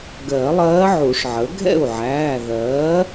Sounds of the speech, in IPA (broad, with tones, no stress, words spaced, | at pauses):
ɡɜ˨˩˦lˠɜː˧˥ʕu˨˩˦ʂʕə˩˥ ɡʱɛ̰˥˩u̯ʕæː˩˧˩ðɜː˩˥